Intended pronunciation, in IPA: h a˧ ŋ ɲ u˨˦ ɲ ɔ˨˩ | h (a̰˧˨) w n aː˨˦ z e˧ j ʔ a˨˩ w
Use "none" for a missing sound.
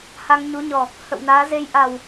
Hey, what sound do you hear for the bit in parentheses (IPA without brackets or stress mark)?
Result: ə̰˧˨